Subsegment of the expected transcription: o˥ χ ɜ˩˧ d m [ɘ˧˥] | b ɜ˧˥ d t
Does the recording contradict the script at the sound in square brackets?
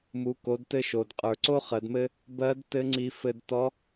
yes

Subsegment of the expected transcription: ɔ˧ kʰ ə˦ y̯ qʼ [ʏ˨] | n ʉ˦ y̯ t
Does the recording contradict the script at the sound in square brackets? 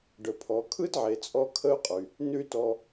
yes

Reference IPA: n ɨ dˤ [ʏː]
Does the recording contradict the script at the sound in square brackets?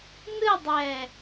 yes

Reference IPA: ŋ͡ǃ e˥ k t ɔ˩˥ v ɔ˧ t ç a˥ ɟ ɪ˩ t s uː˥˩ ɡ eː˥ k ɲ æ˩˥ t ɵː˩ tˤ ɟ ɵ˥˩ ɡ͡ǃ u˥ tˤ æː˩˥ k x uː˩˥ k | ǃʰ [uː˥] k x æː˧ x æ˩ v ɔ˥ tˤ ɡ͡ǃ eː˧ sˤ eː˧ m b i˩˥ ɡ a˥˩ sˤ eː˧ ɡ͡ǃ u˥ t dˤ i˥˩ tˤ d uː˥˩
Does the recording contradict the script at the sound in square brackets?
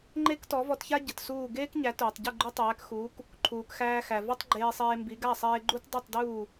yes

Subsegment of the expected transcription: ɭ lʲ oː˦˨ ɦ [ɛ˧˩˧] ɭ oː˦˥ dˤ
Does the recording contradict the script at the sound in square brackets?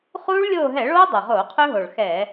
no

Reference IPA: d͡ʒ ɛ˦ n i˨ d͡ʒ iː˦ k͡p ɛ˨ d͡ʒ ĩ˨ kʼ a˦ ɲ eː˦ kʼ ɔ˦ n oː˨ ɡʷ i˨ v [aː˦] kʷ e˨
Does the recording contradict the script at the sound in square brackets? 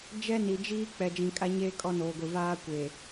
no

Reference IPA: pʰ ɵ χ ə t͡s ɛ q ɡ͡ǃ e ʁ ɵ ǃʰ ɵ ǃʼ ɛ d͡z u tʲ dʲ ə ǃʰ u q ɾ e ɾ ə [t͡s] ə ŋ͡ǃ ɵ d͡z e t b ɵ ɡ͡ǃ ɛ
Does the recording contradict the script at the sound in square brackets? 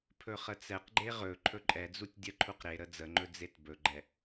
yes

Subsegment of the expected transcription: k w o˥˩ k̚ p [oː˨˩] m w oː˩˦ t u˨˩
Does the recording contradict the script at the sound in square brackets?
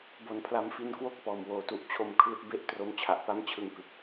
yes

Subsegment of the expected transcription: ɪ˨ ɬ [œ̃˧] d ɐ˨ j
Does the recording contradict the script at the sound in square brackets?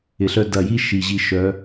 yes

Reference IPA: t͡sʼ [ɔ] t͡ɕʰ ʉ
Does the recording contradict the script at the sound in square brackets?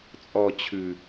no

